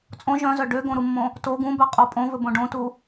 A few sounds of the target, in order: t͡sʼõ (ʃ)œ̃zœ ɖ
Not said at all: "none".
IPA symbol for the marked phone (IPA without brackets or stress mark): ʒ